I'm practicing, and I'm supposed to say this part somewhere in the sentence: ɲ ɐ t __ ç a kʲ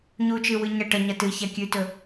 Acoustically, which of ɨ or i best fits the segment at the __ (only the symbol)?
ɨ